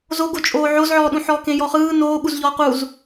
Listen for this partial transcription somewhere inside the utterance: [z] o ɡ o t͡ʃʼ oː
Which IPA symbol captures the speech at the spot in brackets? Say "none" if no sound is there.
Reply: z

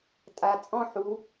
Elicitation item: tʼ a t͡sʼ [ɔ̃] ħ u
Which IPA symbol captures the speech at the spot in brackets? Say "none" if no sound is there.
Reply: ɔ̃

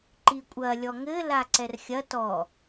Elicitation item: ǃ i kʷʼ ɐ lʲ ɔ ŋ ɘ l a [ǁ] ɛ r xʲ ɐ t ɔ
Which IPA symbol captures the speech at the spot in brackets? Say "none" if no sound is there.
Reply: ǀ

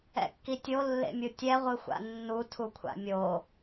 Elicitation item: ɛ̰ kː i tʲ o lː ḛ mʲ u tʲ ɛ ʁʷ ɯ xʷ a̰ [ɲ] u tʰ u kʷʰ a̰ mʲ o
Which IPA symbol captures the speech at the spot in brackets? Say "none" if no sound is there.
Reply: nː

